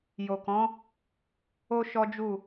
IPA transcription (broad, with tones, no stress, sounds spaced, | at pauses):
j o˨ k ɔ̃˨˦ | o˦ ʃ ɔ˦ d͡ʒ u˦˨